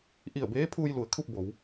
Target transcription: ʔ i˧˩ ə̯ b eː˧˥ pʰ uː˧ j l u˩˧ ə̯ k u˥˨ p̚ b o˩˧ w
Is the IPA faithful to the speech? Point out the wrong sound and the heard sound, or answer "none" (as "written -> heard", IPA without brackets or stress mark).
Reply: k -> kʰ